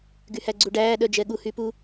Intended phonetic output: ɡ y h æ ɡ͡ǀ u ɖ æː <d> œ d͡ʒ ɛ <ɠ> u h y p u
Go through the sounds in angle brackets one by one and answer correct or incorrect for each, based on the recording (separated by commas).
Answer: incorrect, correct